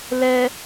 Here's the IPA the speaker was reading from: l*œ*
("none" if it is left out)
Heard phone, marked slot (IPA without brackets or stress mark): ɛ